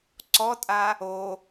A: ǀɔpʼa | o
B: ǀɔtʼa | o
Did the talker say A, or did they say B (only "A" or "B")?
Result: B